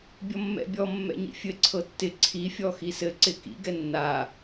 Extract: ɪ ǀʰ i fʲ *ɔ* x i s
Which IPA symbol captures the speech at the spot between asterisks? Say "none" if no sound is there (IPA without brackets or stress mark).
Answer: ɔ